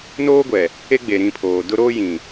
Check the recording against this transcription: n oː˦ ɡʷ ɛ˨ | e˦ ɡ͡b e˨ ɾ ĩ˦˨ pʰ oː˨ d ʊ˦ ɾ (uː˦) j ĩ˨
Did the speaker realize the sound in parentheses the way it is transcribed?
no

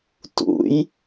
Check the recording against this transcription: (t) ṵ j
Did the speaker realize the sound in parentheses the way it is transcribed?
yes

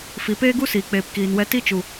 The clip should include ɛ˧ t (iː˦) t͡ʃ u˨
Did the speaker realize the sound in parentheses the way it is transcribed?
no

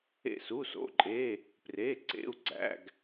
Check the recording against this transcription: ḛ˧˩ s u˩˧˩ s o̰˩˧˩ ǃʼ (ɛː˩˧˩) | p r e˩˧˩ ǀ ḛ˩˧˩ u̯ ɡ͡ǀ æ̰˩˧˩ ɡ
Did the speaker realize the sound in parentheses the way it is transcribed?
no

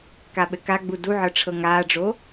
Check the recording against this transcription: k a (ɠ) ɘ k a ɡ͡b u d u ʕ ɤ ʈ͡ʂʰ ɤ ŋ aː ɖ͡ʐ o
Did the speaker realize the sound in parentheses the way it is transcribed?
no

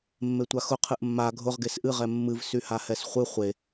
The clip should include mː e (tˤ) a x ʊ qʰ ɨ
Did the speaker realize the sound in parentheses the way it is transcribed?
no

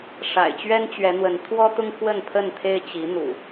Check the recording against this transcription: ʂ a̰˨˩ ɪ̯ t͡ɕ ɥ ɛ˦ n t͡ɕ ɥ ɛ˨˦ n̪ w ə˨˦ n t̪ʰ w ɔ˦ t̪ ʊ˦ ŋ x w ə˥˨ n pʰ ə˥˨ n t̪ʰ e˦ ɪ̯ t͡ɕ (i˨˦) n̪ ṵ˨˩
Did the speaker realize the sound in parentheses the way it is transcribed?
yes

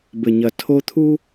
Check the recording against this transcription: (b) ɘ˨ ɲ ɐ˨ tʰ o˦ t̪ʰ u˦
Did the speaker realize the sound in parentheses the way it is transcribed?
yes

